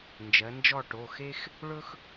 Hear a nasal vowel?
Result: no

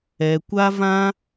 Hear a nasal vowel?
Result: yes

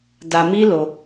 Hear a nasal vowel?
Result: no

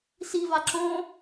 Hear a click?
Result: yes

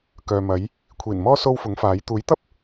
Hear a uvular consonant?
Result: no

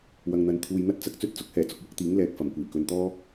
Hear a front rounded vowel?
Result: no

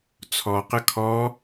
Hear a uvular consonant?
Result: yes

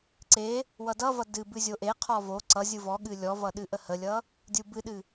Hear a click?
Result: yes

